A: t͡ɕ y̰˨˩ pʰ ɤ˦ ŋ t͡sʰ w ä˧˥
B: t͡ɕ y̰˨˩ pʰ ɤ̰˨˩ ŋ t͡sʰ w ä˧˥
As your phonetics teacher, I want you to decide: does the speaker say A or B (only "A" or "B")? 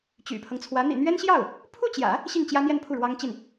A